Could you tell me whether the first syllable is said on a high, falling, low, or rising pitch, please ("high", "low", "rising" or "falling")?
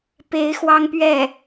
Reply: rising